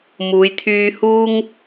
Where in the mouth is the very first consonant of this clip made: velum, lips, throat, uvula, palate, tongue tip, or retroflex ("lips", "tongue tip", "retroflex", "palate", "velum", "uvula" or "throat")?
lips